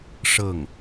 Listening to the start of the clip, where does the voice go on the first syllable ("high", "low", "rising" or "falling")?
falling